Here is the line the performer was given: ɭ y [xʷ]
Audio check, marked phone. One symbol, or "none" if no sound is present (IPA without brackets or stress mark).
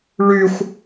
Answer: xʷ